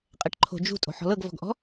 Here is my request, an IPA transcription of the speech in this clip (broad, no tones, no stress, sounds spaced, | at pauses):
qʼ ɛ ʈ ǃʰ o̤ d͡ʒ ṳ tʼ o̤ ħ ɔ̤ l ɤ ɡ v ɔ̤ ɡ ʔ ɔ̤